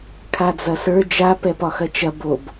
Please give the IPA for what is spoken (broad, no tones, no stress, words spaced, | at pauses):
kʰad͡zɐsə˞ d͡ʒa pɛpɒxɐt͡ʃɐ bob